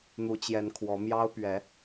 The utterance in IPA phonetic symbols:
n̪u˨˦t͡ɕjɛ˨˦nkʰwɔ˨˦mjɑ˦ʊ̯ pɥɛ˨˦

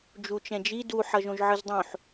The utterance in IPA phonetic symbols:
d͡ʒut͡ʃɛ̃d͡ʒi duħʌʒ õʒʕɯzdˤõħ

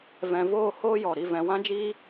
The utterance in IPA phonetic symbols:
vɛ̃˨voː˦˨ hoː˦jɔ˨ ɾi˨vɛ̃˨ wã˧d͡ʒiː˧

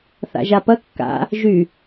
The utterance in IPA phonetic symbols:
θa̰ʒapɐ kːa̰ | ʒy

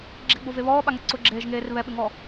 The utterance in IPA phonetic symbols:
ɡ͡ǁeɡ͡bove βɔːɓaŋɛ ǀʊɡ͡ǁeːʒŋeːr βɛɓɪŋɔ

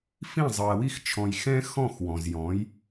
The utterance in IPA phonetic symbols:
fĩ˥˨ zˤɯ˨ɐ̯wi˥˨xt͡ʃʰɔ̃˨j xɛ̃˥ xɔ̃˥˨xwɔ̃˨zjɔ̃˨˥j

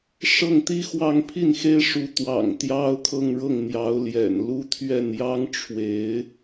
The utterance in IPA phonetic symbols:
ʂɤ˥˩ŋt̪i˥ xwɑ˥˧ŋpʰi˥˩nxe˥ɪ̯ʂu˧˥ t̪wɑ̰˨˩ŋ t̪jɑ˥ʊ̯kʰɤ˥˧ŋɻɤ˥˩ŋ n̪jɑ˧˥ʊ̯ ljɛ̰˨˩nlu˥ t̪ʰɥɛ˥˩njɑ˥ŋʈ͡ʂʰwe˧˥ɪ̯

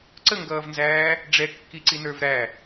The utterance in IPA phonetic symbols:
ǀəŋɡʌːvnzæː | ɖ͡ʐɛkːiǀinə˞v ɾæ

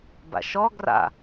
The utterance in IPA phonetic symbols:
ba̰ʃɔ ɡra̰

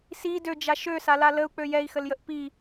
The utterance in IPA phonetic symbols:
si død͡ʒa ʃøsala ləu̯k͡pø jɛi̯xəljəʔ pi

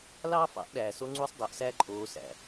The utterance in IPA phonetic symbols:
lɑː˦fɑ̰˨˦ʔɗæː˨ so˧ŋ͡ǀu˧sˤdˤo˨ʔ sæ˦ǃʼoː˧sæ̰˨

